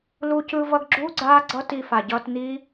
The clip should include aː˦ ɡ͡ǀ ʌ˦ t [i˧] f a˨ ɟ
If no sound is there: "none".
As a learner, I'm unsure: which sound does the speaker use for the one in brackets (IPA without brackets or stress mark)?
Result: i˧